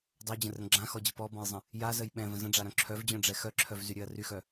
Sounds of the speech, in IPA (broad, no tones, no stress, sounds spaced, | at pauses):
dˤ ø d͡ʑ ə̃ r ɾ ə̃ ɡ͡ǁ ã x ɔ d͡ʑ ə p ɔ b ɔ̃ j zˤ ə̃ | j a z ə j ɓ ɛ̃ v ə̃ z ə̃ ɖ͡ʐ a ɾ œ̃ ǁʰ œ v d͡ʑ œ̃ ɖ͡ʐ ɛ x œ ǁʰ œ v z y ɾʲ ø ɐ̯ r y x œ